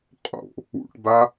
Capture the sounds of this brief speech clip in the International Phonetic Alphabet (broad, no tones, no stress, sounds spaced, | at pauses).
qʼ o̰ | ṵ ʈ b a